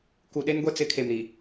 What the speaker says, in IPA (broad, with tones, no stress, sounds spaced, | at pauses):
k u˨ ɗ e˦ n ɡʷ ɛ˦ t͡s ɪ˨˦ kʰ e˨ m ɾ i˨